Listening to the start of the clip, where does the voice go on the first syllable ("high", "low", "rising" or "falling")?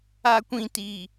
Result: high